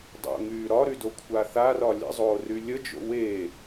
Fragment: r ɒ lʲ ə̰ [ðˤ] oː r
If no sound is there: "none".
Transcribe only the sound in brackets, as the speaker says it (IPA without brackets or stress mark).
zˤ